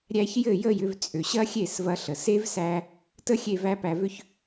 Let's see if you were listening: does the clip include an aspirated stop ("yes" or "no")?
no